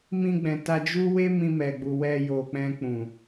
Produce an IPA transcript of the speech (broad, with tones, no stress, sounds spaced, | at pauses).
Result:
m ĩ˧ ɡ͡b ɛ̃˨ t a˧ d͡ʒ u˦ w e˦ m ĩ˧ m ɛ˨ ɡ͡b u˨ w ɛ˧ j o˨ k͡p ɛ̃˧ k͡p ũ˨